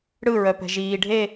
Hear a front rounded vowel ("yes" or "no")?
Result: yes